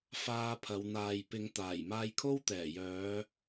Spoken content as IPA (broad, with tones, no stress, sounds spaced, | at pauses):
f aː˧ pʰ ɐ˨˧ w n̪ aː˨ j p ɪ˨˧ ŋ t̪ aː˨˩ j m aː˧ j kʰ o˥ w t̪ ɛː˨˩ j œː˨˧